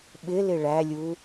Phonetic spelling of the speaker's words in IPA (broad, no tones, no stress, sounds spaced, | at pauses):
ɓ ɪ l ɪ ɭ æ lʲ u